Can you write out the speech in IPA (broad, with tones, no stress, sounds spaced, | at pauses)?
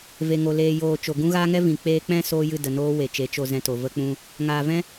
v e˨ ŋ o˨ l eː˨ j oː˨ t͡ʃ o˨ ɡ ũ˦ ɣ aː˦ ŋ ɛ˦ v ĩ˨ k͡p eː˧ k͡p ɛ̃˦ s oː˦ j ɨ˦˨ d ə˨ n oː˦ w e˨ t͡ʃ e˨˦ t͡ʃ o˧ z ɛ̃˧ t o˨ v ə˧ k͡p ũ˧ | ŋ aː˨ v ɛ̃˦